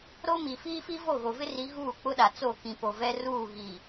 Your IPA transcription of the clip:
ɾ o˦ m i˨ f iː˦ f i˦ v o˦˨ ɣ o˨ v ɪ˦ r i˨˦ ɣ uː˦˨ k͡p ʊ˦ ɗ a˨ t͡s o˦˨ k ĩ˨ p o˨ v ɛ˦ r uː˦˨ ɣ i˨

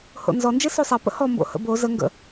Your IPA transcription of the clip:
h o̰ n z ɔ n d͡ʒ e s o sˤ a p ə̰ h ɔ m b o̰ h ə̰ b o z ə ŋ ɡ ə̰

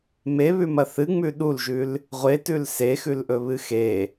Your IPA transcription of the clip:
m e β ʉ m ɐ θ ɨ ŋ͡m ʉ ɗ u l ʒ ʉ l | ʁʷ e t ʉ l s e x ʉ l ʔ ɵ β ɨ x e

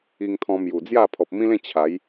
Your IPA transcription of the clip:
i˧ ŋ t̪ʰ ɔ̃˧ m j u˨˩ d͡z j a˥˧ pʰ ɔ˨ p̚ m ĩ˦ l ẽ˥˧ t͡ɕʰ a˨˦ j

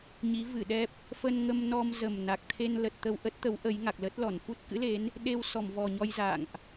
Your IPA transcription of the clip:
ɲ i˨˦ v ɨ˧˩ ɗ ɛ˦˥ p̚ | f ə˧ n ŋ ə˧ m n ɔ˧ m z ə˨˩ m n a˨˩ k̚ t̪ʰ e˧ n l ə˨˩ t̚ t̪ ə˧ w ʔ ə˦˥ t̚ t̪ ə˨˦ w ʔ ə˨˦ j ŋ a˨˩ k̚ l ə˦˥ t̚ l ɔ˧˩ n f u˦˥ t̚ k ɨ̰˧˥ l e˨˦ n | ɗ e˧ w s ɔ˧˩ m v ɔ˨˩ ɲ ɔ˧ j z a̰˧˨ ŋ ʔ

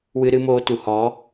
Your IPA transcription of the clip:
w ɨ˧ ɾ ɨ˧ m oː˧ t u˨ h ɔ˨˦

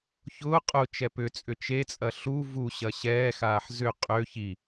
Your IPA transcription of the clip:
ç ʊː qʼ ʊ t͡ʃ ɛ p ʏ t͡sʼ ʏ t͡ʃ e t͡sʼ ɐ ɬ u v u ɕ ɐ ɕ ɛː x aː ħ z ʏ qʼ ø ç i

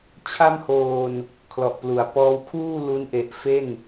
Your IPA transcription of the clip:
t͡ɕʰ a˥˩ m h oː˧ n | kʰ l ɔ˨˩ ʔ p l u˩˦ a̯ p ɔː˦˥ w kʰ uː˥˩ l u˦˥ n ʔ e˨˩ ʔ f e˥˩ n

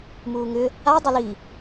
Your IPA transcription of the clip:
m uː ŋ ʏ | a dˤ ə l i

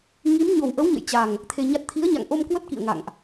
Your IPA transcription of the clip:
ŋ i˨˦ m ɲ o˨˩ w ʔ ə˨˦ w ɲ ə̰˧˨ j t͡ɕ a˨˩ ŋ | t̪ʰ e˧ ɲ a˦˥ t̚ t̪ʰ i˨˦ ə̯ ɲ a̰˧˨ ŋ ʔ o˧ m k w ə˦˥ t̚ k ḭ˧˨ ə̯ ŋ a̰˧˨ ŋ ʔ

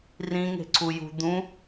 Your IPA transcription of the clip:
r ĩ ŋ e̤ ǀʰ u j ṳ d̪ ũ

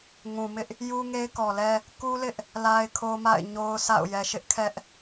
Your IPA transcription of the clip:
ŋ ũ˨ m ɪ˦ ʔ | j u˦ ŋ e˦ ɪ̯ k ɔ˨ l ɛ˦ | k u˦ l ɪ˦ ʔ | l a˦ ɪ̯ kʰ o˦ m a̰˦˨ ɪ̯ ɲ o˦ ʊ̯ s a̰˦˨ ʊ̯ j ɛ˨ ʃ ɪ˦ ʔ kʰ ɛ˦ ʔ

